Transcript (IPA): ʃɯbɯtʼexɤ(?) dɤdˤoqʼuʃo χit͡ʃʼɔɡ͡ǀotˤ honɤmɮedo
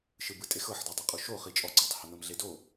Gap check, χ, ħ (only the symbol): ħ